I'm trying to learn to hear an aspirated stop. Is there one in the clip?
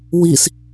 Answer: no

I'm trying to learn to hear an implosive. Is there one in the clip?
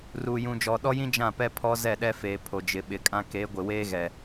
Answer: yes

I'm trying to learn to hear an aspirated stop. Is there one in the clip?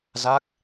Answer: no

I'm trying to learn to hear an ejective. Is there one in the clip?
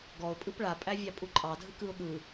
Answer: yes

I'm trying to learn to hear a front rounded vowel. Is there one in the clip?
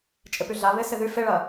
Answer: yes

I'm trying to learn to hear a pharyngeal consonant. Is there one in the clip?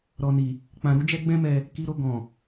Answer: no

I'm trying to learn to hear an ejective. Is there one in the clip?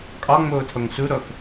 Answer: yes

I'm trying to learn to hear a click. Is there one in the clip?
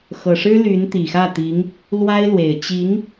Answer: no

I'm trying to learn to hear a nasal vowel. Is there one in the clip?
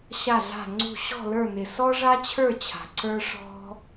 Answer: no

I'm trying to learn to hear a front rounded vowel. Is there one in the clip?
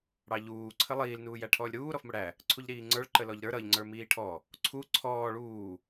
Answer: no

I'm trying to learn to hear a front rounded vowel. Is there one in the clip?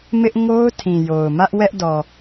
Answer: no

